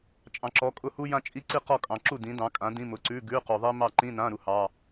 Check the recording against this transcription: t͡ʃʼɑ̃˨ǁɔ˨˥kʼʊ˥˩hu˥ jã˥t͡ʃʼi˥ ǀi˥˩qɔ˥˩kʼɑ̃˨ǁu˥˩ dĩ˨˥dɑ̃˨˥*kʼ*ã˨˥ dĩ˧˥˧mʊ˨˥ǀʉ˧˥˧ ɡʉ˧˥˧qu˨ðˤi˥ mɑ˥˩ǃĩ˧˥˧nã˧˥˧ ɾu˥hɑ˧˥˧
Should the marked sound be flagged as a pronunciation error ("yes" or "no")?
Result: no